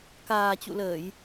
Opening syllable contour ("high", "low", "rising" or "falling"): low